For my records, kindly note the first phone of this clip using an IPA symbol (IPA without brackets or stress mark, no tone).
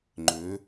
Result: ŋ͡ǃ